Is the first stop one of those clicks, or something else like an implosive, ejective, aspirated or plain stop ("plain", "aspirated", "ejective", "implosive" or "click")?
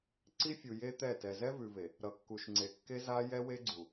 click